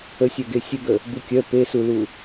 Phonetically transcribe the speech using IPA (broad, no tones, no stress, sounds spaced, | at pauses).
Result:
ə sʲ œ ɡ e sʲ ə ɡ ə | b u kʲ œ p e s u l u